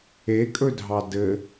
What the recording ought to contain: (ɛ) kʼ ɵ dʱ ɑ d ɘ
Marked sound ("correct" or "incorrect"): incorrect